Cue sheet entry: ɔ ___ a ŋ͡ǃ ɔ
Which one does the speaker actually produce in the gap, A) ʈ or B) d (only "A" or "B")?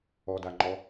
B